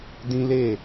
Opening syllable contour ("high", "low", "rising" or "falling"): high